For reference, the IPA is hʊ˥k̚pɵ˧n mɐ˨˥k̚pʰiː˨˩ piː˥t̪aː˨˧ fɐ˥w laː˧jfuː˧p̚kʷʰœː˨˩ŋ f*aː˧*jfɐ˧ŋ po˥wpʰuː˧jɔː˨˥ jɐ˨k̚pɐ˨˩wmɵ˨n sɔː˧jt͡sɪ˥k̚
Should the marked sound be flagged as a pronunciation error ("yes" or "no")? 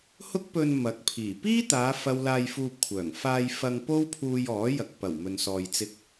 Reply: no